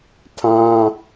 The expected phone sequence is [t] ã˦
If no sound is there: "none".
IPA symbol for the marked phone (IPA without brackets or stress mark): tʰ